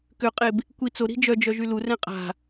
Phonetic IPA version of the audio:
k ø qʼ e b | kʷ i t͡s o ɾ i̤ d͡ʒ œ d͡ʒ œ ʒ y l u r ɛ̃ qʼ a̤

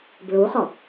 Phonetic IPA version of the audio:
b ɹ u χ ɔ

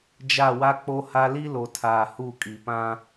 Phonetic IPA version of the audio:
d͡ʒ a˦˨ w a˦ k͡p o˦ h a˦ l i˦ l o˨ tʰ aː˨ h u˦˨ kʼ i˨ p ã˦

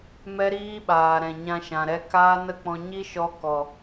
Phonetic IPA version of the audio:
m ɛ˦ ɾ iː˦ ɓ aː˨ ɾ ɛ̃˨ ɲ ã˧ ʃ ã˨ ɾ ɛ˧ k aː˦ n ə˦ k͡p ɔ̃˧ ɲ i˦ ʃ ɔ˧ k ɔ˨

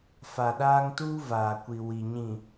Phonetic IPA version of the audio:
f a˨ ɗ aː˦ ŋ t uː˦ v aː˨ kʷ i˨ w i˨ ɲ ĩ˨

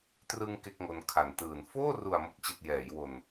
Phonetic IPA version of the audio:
t r ɯ˧ ŋ k e˥˩ k̚ ŋ o˧ n kʰ a˨˩ n t ɯː˨˩ n f oː˥˩ r u˨˩ a̯ m o˨˩ k̚ t͡ɕ i˨˩ t̚ j ɛː˩˦ j w o˨˩ n

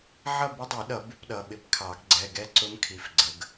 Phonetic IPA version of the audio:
ʕ ʌ˥˨ b ə˦˥ dˤ i˨˩˦ ɗ ʌ˨˩˦ b ɪ˦˥ p ɗ ʌ˩˧˩ ɓ ɪ˦˥ p kʰ ɑ˨˩˦ ɡ ɡ͡ǀ ɛ˩˧˩ ɡ ɛ˥˨ ǀ ʊ˦˥ m kʰ i˩˧˩ f ɡ͡ǀ ə˩˧˩ ɡ

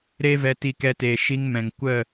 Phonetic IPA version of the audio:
ɾ e˦ v ɛ˧ t i˧ k ɛ˧ t eː˨ ʃ i˧ ŋ m ɛ̃˨ ŋ kʷ ə˦˨

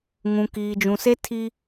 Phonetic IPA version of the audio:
ŋ ũ˨ k iː˨ d͡ʒ ũ˨ s e˦ tʰ i˦

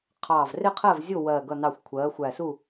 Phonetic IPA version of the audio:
qʰ ɑː˨˩ v r ɪ˦˨ qʰ ɜ˦˨ v zʲ ʊ˦˨ w ɜː˨˩ ɡ ʌ˨˩ n ɑ˨˩ xʷ kʷʰ ɜː˩˧ xʷ æ˨˩ s u˦˨

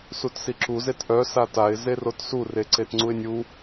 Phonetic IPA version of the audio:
s u t s i ǁ u z e t ʔ œ s a t a ɪ̯ z e r o t s u r e ǀ e t ŋ͡ǀ u ɪ̯ nʲ u

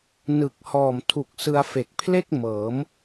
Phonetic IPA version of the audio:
n ɯ˨˩ k̚ h ɔː˨˩ m tʰ u˨˩ k̚ s ɯ˧ a̯ f e˨˩ k̚ pʰ l e˥˩ k̚ m ɤː˩˦ m

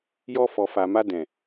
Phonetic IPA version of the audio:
j ɔ˧ f ɔ˨ f a˨ m a˧ d ɛ̃˨

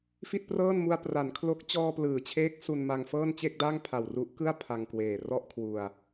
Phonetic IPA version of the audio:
f i˥˩ t̚ p r ɤː˥˩ n m u˧ a̯ p r a˩˦ n kʰ l o˦˥ k̚ t͡ɕ ɔː˧ p l ɯː˩˦ t͡ɕʰ eː˦˥ k̚ s u˧ n m a˧ ŋ f ɤː˥˩ n t͡ɕ e˥˩ k̚ d a˥˩ ŋ pʰ a˨˩ w r u˦˥ ʔ k ɯ˥˩ a̯ pʰ a˧ ŋ k w eː˨˩ r ɔ˥˩ ʔ kʰ w u˧ a̯

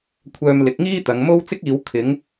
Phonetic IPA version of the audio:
kʷʰ œː˧ m l ɪ˨˥ k̚ ŋ iː˥ t̪ ɐ˨˧ ŋ m o˥ w t͡s ɪ˥ k̚ iː˨˧ w kʰ ɪ˨˥ ŋ

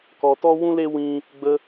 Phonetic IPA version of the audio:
k ɔ˨ t ɔ˧ w ũ˧ l e˧ w ĩ˧ | ɡ͡b ə˦

